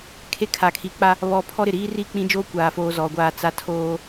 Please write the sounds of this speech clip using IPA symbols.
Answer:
kʰ e˦ kʰ a˨ kʰ i˨˦ k͡p a˦ | β ɔ˦ pʰ ɔ˦ ɾ ɪ˨ ɾ iː˦ r i˦˨ k͡p ĩ˦ d͡ʒ oː˦ kʷ aː˨ f oː˦ z ɔ˨ ɡʷ aː˦ t͡s a˦ tʰ oː˦

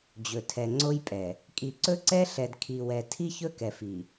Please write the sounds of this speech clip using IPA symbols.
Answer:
d͡ʑ ɵ˨ tʰ ɛ˨ ŋ͡ǀ o˦ j pʼ ɛ˨ | kʼ i˨ ǀ ɵ˦ ǀ ɛ˦ ɬ ɛ˨ d kʰ i˨ w ɛ˨ tʰ i˦ ç ɵ˦ k ɛ˨ f i˨

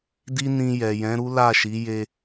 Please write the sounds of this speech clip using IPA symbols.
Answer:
d i˦ n ĩ˧ j ɛ˨ j ɛ̃˨˦ ɾ u˦ l a˦˨ ʃ i˨˦ j e˧

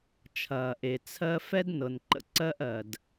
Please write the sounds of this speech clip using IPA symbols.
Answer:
t͡ʃʰ ɐː˩ ʔ e˩ t͡sʰ ɜ˥ f ɛ˥ d n ɤ˩ n ǃ ə̰˥ ǀ ɜ˥ ʔ ɜ˩ d

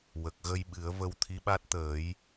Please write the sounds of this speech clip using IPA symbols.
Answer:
w ə˨˩ k̚ ɣ ə˧ j ɓ ɨ˨˩˦ ə̯ v ə˧ w t̪ʰ i˧˥ ɓ a˦˥ t̚ t̪ əː˨˩˦ j

